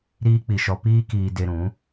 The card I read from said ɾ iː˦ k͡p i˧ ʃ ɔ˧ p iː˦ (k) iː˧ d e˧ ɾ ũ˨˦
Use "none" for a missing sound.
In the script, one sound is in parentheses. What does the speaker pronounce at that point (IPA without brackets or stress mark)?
k